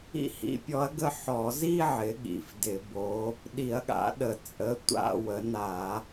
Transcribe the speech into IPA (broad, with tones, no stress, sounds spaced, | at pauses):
ḭ˥˧ h ḭ˧˥ pʲ ɔ˧˥ ɐ̯ ɡ ə˥˧ ħ ɔ˧˩˧ z i˥˧ ʕ ɪ˩˥ ɠ ḭ˩˧˩ f d ɪ˧˩˧ b o˧˥ | ɗ i˧˩˧ ɐ̯ ɠ a̰˩˥ ɗ ə˩˧ t͡sʼ ə˩˥ tʷ a̰˥˧ w ə˩˥ n a˧˩˧